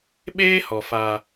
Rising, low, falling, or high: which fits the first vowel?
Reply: high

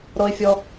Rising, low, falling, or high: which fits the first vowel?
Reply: high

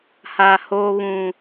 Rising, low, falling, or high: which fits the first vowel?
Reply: low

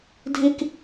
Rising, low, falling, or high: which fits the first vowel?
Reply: high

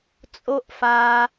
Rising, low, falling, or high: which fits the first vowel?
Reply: high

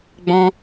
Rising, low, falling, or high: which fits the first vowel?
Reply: high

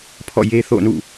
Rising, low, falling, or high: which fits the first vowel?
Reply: falling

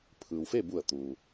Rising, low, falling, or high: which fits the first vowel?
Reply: low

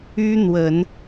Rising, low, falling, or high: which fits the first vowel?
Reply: high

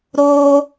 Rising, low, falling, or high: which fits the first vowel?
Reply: high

